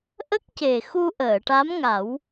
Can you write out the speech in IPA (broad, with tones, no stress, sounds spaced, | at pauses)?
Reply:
ʔ ə˦˥ k̚ c e˨˩ x u˧ ʔ əː˨˩˨ ʈ a˧˥ m ŋ a˨˩˦ w